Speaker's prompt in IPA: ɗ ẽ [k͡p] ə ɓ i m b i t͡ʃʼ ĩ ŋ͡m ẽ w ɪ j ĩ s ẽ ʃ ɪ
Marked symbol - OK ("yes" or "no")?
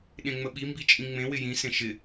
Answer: no